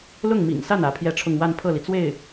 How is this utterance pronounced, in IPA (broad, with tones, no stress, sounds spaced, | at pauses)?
l ʊ˥˩ ŋ m ḭ˨˩ ŋ s a˥˩ n ä˧˥ pʰ j ɛ˥˧ ʈ͡ʂʰ ʊ˥˧ ŋ w a˥˧ n pʰ ɤ˥˩ l i˩ t͡s w e˥˩ ɪ̯